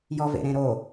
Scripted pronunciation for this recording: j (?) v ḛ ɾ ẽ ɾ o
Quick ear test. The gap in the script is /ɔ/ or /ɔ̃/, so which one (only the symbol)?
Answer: ɔ